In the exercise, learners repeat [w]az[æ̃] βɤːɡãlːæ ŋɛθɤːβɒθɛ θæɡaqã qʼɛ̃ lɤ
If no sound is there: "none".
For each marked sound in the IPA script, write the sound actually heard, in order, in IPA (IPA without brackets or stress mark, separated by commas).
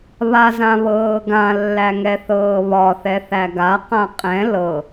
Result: β, ã